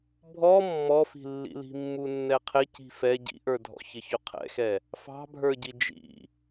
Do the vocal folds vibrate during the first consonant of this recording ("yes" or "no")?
yes